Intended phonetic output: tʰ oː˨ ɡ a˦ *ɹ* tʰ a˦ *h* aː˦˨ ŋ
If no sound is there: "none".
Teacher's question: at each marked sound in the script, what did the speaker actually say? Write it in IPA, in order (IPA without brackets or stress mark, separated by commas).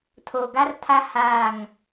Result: r, h